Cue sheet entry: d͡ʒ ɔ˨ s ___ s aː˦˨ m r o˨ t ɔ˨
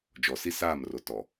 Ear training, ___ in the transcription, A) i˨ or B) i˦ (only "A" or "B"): B